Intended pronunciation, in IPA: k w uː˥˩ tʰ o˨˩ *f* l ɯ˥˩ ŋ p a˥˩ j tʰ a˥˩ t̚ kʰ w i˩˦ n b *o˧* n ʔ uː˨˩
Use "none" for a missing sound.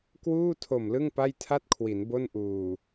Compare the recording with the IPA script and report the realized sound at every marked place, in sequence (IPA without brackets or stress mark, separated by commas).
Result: m, o˥˩